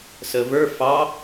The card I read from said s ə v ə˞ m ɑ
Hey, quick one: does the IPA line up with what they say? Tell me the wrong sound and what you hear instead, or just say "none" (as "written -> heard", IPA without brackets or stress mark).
m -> f